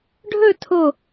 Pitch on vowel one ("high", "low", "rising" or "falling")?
falling